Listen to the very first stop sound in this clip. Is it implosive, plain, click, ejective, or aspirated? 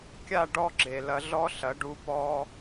plain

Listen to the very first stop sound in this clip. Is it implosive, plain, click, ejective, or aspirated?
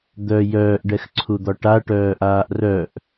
plain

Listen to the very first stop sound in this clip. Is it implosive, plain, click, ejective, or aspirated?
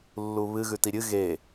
plain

